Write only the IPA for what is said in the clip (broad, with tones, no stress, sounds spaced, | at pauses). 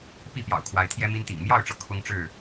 p i˥˨ p j ɑ̰˨˩ ʊ̯ kʰ w a˨˦ ɪ̯ t̪ʰ j ɛ˦ m i˦ n t̪ ḭ˨˩ ŋ m j ɑ˥˨ ʊ̯ ʈ͡ʂ ɤ˩ kʰ ʊ˦ ŋ ʈ͡ʂ ɻ̩˥˨